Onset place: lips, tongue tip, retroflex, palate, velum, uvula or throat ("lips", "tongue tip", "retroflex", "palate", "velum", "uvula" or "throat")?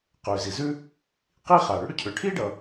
uvula